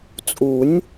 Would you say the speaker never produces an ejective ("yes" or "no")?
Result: no